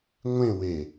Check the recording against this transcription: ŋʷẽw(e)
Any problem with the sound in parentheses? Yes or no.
no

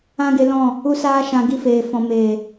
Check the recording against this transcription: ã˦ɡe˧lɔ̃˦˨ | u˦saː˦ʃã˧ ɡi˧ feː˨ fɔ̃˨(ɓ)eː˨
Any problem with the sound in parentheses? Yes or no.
yes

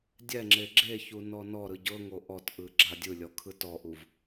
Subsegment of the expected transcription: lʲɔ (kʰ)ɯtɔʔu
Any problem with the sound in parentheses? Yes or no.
no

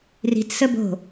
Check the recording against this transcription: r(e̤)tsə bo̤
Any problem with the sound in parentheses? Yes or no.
yes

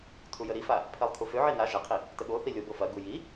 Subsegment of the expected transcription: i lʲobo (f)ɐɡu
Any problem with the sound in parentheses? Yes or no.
no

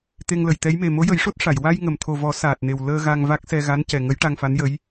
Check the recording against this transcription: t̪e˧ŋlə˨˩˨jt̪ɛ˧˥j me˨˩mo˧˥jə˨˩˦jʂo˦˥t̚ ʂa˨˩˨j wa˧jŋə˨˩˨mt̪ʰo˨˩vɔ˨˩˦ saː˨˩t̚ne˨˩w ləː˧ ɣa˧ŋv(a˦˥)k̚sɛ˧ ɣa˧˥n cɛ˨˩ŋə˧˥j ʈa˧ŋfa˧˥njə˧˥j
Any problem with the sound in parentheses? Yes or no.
no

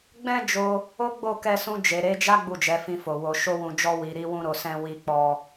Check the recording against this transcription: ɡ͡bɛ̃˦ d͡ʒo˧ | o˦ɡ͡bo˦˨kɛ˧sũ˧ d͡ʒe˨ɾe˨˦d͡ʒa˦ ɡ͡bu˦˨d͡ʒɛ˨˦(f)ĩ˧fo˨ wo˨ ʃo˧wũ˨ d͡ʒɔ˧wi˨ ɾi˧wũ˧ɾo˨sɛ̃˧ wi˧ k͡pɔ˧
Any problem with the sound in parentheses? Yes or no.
no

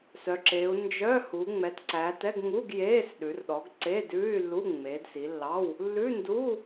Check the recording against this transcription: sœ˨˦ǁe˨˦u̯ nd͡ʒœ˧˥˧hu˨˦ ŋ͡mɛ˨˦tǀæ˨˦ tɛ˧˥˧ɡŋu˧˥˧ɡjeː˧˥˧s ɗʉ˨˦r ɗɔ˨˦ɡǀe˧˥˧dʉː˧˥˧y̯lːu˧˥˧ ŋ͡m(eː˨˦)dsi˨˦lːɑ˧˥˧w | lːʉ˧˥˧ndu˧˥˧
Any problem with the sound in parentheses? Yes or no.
no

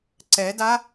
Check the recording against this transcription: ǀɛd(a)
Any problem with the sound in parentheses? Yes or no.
no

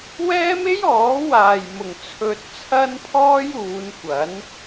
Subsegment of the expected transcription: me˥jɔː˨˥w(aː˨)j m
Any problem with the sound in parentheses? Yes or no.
no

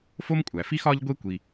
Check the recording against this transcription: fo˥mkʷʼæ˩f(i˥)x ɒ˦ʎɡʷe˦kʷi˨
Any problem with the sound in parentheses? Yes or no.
no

